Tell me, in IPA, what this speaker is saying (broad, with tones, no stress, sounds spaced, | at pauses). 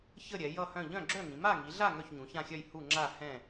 ç ə˥˧ ɾʲ ɛ˨˦ j ʌ˥˧ h œ̃˥˧ ʎ œ̃˥˧ ɡ͡ǁ œ˥˧ ŋ ĩ˨˦ m a˥˧ ŋ i˨˦ ɮ a˥˧ ŋ œ˥˧ ç ɲ ũ˨˦ ç ã˥˧ xʲ œ˥˧ j h u˥˧ ŋ͡ǁ a˥˧ h ɛ̃˥˧